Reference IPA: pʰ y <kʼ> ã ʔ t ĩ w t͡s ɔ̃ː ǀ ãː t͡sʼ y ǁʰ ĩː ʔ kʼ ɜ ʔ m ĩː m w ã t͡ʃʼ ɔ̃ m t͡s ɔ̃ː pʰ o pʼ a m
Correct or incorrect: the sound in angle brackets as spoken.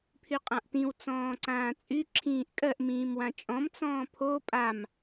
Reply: incorrect: qʼ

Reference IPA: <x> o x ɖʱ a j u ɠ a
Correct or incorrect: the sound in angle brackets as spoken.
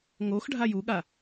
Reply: incorrect: ŋ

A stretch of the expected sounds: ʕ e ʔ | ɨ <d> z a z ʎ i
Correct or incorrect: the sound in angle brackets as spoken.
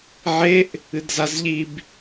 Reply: correct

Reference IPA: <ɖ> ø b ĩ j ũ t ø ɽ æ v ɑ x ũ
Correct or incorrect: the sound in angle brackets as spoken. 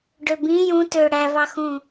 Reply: correct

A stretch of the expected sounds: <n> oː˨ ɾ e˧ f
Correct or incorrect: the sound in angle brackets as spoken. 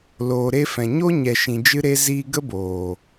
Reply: incorrect: l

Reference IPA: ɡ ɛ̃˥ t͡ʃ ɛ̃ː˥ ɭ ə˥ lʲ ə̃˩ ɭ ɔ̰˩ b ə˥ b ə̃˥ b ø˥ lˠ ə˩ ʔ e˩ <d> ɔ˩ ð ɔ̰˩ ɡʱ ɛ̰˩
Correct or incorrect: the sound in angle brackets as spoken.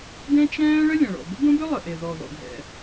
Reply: incorrect: ð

